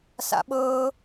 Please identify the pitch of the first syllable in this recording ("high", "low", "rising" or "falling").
high